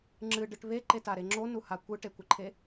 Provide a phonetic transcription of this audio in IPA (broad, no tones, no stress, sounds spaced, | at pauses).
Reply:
ŋ͡ǁ ɨ ɖ ɨ ʈ β e ǃ e t a ɾ e ŋ͡ǁ o n u h a kʷ ɨ ʈ e kʷ ɨ ǃʰ e